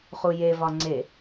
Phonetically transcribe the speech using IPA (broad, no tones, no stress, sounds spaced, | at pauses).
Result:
χ u j e v ɒ ŋ͡ǀ e